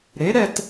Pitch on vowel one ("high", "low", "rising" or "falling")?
rising